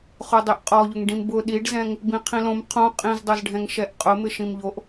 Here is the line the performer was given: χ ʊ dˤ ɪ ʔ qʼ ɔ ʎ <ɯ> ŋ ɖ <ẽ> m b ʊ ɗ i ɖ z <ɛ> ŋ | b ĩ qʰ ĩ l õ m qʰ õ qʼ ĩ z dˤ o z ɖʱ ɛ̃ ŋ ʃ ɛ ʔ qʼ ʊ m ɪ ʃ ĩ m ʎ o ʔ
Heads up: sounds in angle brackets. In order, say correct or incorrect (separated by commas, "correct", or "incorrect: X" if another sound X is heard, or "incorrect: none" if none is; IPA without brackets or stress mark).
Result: incorrect: ʊ, incorrect: ĩ, incorrect: ɛ̃